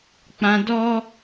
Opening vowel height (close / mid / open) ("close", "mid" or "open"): open